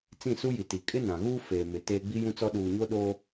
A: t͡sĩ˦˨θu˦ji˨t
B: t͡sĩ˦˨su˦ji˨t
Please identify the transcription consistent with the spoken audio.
B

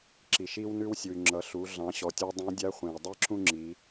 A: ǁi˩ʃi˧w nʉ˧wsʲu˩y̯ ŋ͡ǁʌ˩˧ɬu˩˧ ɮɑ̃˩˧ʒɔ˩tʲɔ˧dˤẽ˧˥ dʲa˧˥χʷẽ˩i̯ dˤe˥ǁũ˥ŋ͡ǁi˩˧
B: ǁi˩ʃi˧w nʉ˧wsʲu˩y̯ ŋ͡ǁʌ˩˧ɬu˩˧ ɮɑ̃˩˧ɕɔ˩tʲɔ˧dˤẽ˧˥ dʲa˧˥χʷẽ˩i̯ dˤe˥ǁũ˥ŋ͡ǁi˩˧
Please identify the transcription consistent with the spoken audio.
B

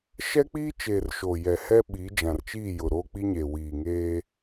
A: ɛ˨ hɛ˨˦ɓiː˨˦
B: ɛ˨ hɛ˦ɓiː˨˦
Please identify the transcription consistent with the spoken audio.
B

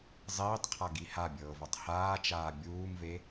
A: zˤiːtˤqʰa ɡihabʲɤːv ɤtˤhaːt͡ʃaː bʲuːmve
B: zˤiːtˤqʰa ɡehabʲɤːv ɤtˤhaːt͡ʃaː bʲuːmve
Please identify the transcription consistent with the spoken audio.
A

